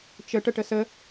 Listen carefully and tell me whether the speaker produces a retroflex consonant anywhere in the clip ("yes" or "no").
yes